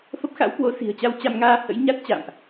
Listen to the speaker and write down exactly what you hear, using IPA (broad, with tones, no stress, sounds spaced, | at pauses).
f ə˦˥ p̚ x a̰˧˥ w k w o˨˦ s i̤˨˩ ə̯ t͡ɕ a˧ w t͡ɕ a˧ m ŋ aː˧ h ə̰˧˥ j ɲ a˦˥ t̚ t͡ɕ a̰ː˧˨ m ʔ